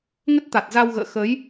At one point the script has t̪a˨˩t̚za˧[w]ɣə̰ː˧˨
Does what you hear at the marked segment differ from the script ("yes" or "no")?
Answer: no